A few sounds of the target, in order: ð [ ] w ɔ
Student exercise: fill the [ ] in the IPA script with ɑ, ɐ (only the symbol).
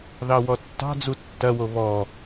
ɑ